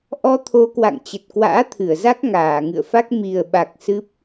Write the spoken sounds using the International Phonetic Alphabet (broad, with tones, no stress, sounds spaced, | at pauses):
ʔ ɔ˧ t̪ʰ o˨˦ k w a̰˧˨ ŋ t͡ɕ ə˨˩ t̚ k w a̰ː˧˥ t̪ʰ ɨ˧˩ ə̯ z a˦˥ k̚ ŋ aː˧˩ ŋ ɨ̰˧˨ ə̯ f a˦˥ k̚ m i˨˩ ə̯ ɓ a˨˩ k̚ s ɨ˦˥ p̚